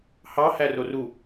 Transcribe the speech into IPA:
hɑ hæroru

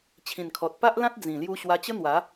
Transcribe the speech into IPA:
t͡ɕʰĩ˨˩nkʰɔ˨t̚ pa˦ʔlã˦t̚ d͡zĩ˨˩ lju˧ ɕwa˧t͡ɕə˦n̪wa˨˦

